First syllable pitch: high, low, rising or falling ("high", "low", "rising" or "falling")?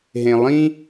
low